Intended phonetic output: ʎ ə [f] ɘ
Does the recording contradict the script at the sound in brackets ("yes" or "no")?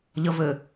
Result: yes